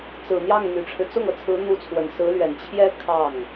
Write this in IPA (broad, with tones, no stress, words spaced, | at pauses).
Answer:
t͡sɹ̩˨˩ n̪jɑ˥˩ŋn̪y˨˩ʈ͡ʂʰɻ̩˦ t͡sʊ˥˩ŋɤ˩t͡sʰɹ̩˧˥ n̪u˧˥t͡sʰwə˨˩nsɹ̩˧˥lɥɛ˨˩n t͡ɕʰjɛ˥ kʰɑ˥˩ŋ